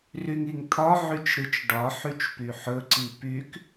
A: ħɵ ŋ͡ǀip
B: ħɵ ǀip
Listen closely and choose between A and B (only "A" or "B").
B